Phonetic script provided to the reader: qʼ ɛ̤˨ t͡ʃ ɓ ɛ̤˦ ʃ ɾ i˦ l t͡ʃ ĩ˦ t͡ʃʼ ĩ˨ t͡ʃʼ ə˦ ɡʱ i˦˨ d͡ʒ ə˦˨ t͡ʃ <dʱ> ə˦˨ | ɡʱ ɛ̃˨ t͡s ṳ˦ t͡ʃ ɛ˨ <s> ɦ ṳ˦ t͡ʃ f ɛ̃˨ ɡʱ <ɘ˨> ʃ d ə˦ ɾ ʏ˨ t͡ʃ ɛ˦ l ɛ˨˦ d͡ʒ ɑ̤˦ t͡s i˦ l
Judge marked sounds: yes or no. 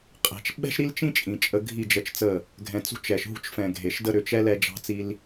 no, no, no

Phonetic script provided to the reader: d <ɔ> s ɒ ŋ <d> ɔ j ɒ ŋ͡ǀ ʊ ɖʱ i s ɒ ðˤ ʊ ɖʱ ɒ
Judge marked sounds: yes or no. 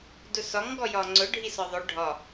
no, no

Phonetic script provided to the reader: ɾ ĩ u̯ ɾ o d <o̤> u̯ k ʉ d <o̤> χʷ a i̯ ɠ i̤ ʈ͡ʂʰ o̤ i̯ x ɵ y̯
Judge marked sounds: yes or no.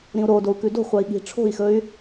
no, yes

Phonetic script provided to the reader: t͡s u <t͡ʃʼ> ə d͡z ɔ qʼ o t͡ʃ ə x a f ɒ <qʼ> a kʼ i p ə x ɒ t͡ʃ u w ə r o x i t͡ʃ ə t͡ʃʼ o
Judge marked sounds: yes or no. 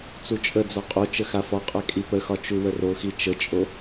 yes, yes

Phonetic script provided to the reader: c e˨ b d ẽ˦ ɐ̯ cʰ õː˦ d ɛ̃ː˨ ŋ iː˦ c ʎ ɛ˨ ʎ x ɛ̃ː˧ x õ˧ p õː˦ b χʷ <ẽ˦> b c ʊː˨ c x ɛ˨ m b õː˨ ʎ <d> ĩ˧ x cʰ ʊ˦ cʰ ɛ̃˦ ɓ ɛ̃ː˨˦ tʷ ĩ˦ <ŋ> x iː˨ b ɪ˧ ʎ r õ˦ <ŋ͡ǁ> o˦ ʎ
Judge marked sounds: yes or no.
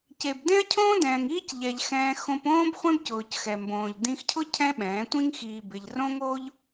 yes, yes, yes, no

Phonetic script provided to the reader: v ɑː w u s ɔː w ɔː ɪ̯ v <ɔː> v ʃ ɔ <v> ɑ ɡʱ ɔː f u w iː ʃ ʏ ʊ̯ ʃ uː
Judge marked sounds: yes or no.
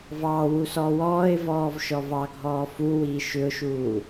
yes, yes

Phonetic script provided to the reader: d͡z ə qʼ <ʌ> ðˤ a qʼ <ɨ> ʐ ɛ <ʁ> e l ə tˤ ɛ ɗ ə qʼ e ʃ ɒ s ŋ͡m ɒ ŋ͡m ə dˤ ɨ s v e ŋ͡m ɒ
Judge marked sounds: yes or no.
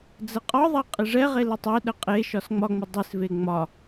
no, yes, yes

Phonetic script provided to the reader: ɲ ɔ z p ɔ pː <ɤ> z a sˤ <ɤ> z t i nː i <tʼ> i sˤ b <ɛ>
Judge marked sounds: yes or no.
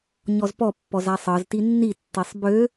no, yes, no, no

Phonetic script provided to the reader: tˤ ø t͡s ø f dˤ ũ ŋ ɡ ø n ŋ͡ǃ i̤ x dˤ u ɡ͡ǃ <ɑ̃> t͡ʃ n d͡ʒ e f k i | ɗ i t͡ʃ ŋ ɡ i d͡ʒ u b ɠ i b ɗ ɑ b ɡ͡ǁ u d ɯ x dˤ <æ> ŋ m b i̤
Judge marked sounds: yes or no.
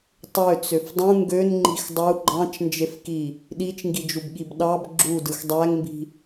yes, yes

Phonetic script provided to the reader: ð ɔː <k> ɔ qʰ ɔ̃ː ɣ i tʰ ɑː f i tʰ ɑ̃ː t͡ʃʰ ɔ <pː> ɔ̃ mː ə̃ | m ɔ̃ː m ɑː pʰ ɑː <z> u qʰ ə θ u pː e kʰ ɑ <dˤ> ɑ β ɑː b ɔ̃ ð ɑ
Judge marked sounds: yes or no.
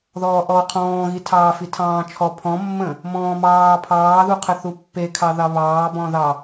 no, no, no, no

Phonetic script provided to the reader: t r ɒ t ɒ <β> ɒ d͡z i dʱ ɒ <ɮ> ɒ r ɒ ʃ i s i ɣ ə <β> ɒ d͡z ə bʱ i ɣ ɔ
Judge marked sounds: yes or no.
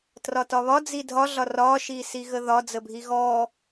yes, yes, no

